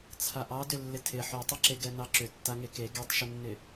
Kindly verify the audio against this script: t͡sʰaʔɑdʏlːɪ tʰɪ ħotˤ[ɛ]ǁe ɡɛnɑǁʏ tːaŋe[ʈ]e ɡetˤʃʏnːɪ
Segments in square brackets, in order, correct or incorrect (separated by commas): correct, incorrect